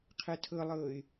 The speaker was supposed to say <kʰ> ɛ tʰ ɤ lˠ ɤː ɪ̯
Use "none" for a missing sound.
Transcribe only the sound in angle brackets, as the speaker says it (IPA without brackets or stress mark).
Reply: qʰ